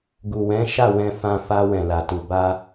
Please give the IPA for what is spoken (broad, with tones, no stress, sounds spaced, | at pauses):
ɡ u˨ w ɛ̃˨˦ ʃ a˦˨ w ɛ̃˧ f ã˧ f a˧ w ɛ̃˨ l a˨ t u˨ b a˧